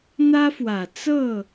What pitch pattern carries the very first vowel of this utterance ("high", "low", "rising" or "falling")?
high